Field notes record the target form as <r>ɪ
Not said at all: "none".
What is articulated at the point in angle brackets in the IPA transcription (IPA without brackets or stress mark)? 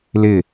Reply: l